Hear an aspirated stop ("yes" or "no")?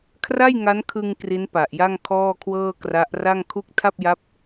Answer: yes